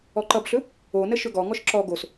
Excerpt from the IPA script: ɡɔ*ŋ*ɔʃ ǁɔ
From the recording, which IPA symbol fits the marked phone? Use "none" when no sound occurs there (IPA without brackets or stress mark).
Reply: ŋ